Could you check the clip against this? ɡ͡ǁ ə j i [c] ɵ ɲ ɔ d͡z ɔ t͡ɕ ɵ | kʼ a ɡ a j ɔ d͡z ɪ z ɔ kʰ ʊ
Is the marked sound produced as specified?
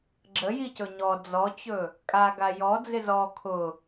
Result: yes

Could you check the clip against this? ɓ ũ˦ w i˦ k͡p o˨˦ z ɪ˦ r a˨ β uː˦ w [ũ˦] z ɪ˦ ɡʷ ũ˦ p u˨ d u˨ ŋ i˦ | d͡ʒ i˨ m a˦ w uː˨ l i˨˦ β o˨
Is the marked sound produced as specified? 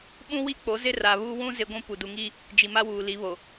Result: yes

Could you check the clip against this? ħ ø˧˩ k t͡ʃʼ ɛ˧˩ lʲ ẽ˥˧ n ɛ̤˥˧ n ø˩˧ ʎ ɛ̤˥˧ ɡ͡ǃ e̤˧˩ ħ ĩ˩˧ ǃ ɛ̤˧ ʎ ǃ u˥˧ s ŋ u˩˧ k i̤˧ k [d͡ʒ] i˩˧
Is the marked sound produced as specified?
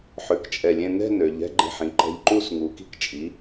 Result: no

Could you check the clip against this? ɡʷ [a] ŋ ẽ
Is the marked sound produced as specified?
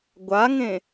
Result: yes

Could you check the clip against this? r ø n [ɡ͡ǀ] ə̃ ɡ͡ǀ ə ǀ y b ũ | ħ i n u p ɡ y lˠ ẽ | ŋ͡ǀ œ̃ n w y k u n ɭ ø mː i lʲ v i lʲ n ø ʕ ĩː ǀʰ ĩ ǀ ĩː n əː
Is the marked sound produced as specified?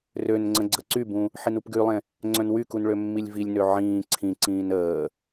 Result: no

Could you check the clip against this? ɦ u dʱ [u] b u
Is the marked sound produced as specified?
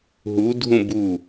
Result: no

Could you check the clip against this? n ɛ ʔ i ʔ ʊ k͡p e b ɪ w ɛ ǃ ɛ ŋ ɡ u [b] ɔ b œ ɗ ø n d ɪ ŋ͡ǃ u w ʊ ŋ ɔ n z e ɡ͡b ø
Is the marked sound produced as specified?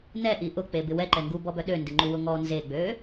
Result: yes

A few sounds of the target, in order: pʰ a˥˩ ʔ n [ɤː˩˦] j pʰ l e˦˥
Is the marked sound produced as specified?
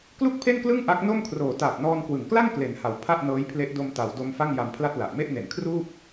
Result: no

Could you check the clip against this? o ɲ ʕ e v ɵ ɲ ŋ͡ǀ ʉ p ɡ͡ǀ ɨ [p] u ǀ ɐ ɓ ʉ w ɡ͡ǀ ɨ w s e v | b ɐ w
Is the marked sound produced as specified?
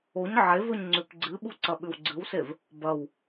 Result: no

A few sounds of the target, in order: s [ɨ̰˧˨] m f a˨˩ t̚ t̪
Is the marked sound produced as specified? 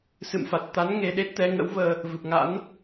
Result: yes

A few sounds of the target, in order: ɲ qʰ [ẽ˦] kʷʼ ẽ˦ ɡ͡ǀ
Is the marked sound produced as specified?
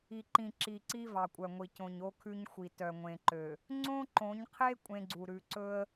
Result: no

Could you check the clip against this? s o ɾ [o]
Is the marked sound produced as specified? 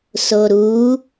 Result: no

